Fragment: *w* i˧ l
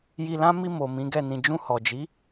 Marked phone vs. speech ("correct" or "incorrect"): incorrect